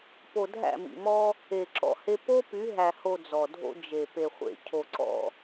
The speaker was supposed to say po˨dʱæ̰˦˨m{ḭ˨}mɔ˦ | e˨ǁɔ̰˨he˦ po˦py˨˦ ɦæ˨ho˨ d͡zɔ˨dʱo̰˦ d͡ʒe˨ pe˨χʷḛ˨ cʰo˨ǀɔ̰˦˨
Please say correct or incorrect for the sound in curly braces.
correct